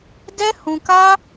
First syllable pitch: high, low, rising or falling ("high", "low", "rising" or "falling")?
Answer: high